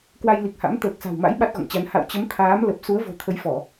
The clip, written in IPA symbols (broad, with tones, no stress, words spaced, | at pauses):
kwa˧jli˨˩k̚ha̰˧˥m t̪əː˨˩k̚sa̤˨˩wma̰˧˥j ɓa˦˥t̚ɣɔ̰˧˨ŋt͡ɕa˨˦n ha̰˧˨wt͡ɕə˨˦m t̪ʰaː˨˦mlə˨˩p̚ su˨˦ə̯vo̤˨˩ t̪ʰə˨˦jfɔ˧˩˨